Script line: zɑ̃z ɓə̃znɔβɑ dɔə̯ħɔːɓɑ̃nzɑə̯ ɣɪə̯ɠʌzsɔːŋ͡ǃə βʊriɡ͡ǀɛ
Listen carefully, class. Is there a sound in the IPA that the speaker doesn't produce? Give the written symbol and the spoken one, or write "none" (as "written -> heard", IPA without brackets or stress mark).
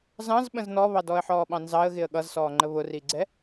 none